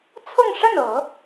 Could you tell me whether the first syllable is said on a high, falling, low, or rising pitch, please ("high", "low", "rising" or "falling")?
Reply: falling